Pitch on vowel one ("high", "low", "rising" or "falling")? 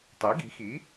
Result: rising